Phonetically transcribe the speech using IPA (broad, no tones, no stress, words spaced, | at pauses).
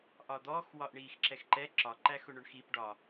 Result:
ʔɒd̪ɔx wɒʔɳiːxǁɛxǃɛ ǁɒ ǃæxʊɳʊɳxip ɖɒ